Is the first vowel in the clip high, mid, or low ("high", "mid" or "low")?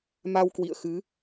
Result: low